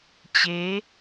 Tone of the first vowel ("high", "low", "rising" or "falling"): rising